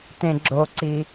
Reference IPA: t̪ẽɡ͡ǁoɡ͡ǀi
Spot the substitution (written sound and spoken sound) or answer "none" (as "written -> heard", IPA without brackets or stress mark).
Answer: ɡ͡ǀ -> ǀ